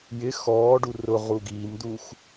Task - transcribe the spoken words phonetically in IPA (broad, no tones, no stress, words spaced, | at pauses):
jɪ xɔːɖu rʊ ʁuɡiːmd̪ux